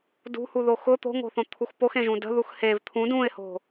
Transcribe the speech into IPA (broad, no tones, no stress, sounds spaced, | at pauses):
d ṳ h u ð o x ʊ t̪ o̤ ŋ o̤ θ õ t̪ʰ u x p o x ẽ ʒ ũ d ə̤ ð u x h e v t̪ʰ ũ d ũ ɪ̯ h o̤